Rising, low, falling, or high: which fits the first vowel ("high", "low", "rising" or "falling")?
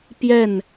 falling